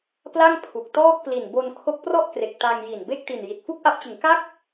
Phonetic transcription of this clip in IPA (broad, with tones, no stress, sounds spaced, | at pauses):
p l a˥˩ ŋ pʰ u˨˩ k̚ t ɔː˥˩ k̚ p l i˨˩ n b o˧ n kʰ o˦˥ k̚ p r ɔ˥˩ ʔ k r e˨˩ k̚ t a˧ ŋ j i˨˩ n b e˥˩ k̚ t i˨˩ n j i˨˩ t̚ f u˥˩ k̚ ʔ a˦˥ p̚ t͡ɕ ɯ˩˦ ŋ k a˥˩ k̚